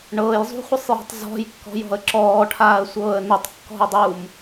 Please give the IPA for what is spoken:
ɳ ɤː j zˤ ṳ χʷ ə sˤ j ɔ̤ tˤ z ɔ̤ j kː ɔ̤ j ɔ̤ ə̯ ǁ ɔː ʈʰ aː ə̯ sʷ ɤː ə̯ n ə tˤ kː ɔ̤ ə̯ dˤ uː m

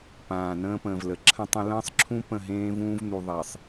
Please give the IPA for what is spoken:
p ãː˨ n ə̃ː˦ p ə̃ː˨ v l ə˨ ǁʰ ə̃˦ tˤ ə̃˦ l ə̃ː˦ sˤ ǁʰ ũ˦ p ə̃˦˨ ɦ ẽː˦ v ũː˦ v n u˨ ðˤ e˨ sˤ

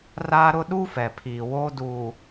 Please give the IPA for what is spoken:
r aː˦ ɾ ʊ˦ ɗ u˦ f ɛ˨ pʰ iː˨ w oː˦ d uː˨

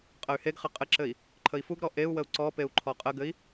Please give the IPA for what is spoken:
qʼ ə y̯ h e ɡ χ ɘ qʼ ɘ ǁ ɘ i̯ | ǃʰ ə i̯ f u ɡ ɾ ɔ ʔ e u̯ w ə u̯ ǀ ɔ p e u̯ ǃʰ ɔ qʼ ə ɡ ɘ i̯

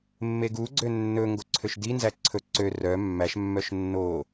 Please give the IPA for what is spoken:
mː e ɡ u ɡ͡ǀ ø nː ɵ ŋ ɡ o ǀʰ ø ʃ d i n z æ ǀʰ ɵ ǀ ø r œ mː æ ʃ mː œ ʃ nː o

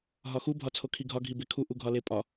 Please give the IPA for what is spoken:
ɦ ɒ x u bʱ ɒ t͡sʰ o kʰ i ɡʱ ɒ ɡʱ i b e kʰ u ʔ u ɡʱ ɒ l e pʼ ɒ

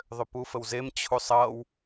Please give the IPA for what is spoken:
ðˤ ʏ p u f ə w z e m t͡ɕʰ u sˤ ʌ w

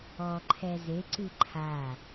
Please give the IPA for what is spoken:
ɔ ǃʰ ɛ z e ǀ ɨ ǃʰ a

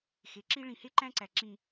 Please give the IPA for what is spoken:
x e˨ ǁ i˦ ɭ ĩ˨ h e˦ ǃ æ̃˦ ǀ æ˨ ǁ ĩ˦

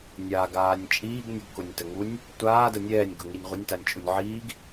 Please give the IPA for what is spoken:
nʲ a ɡ aː nʲ t͡ʃʼ iː ɡ nʲ ʊ ɡ k ʊ nʲ t ə ŋ u nʲ | tʷ aː d ə nʲ ɛː nʲ ɡ ʊ ŋ i nʲ ʁʷ ə nʲ t a nʲ t͡ʃʼ u nʲ ʕ iː ɡ

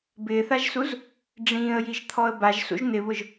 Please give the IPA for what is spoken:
b ɪː θ a ʒ s u z | ɖ͡ʐ ĩː ə̯ j i ʒ t̪ʰ ɔ ə̯ b a ʒ s ṵ ʒ n̪ ɪ β ʊ ʒ

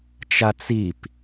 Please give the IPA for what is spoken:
t͡ʃ a t͡s i p

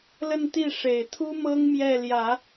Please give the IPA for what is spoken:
l ə˥˧ n t̪ i˥˩ ʂ e˨˩ ɪ̯ t̪ʰ u˥ m ɤ˥ ŋ m j ɛ˥˩ l j ä˨˩˦

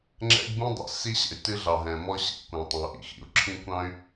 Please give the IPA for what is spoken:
ŋ͡ǁ ɛ̰˦ ɡ b ĩ˦ dˤ ɛ̰˨ s i˦ ɕ ɛ̰˨ y̯ t ɨ˦ ɮ ɑ˨ ɦ ɛ̃˨ m ɔ˦ ɕ ḭ˨ kʷ ɑ̃˨ tˤ ɑ̃˨ u̯ ʔ ḭ˨ x ḭ˨ u̯ ǁʰ ĩ˦ kʷ ɑ̃˦ y̯

